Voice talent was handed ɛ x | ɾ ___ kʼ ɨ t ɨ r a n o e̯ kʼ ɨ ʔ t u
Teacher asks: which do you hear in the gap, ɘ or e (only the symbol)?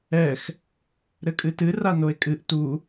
ɘ